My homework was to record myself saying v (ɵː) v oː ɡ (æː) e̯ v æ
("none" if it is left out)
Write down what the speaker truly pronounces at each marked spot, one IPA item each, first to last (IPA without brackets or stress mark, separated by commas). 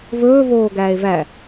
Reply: ɵː, æː